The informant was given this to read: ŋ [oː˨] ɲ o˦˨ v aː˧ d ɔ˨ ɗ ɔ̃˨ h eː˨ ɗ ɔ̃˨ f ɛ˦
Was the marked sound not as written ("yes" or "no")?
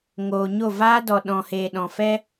no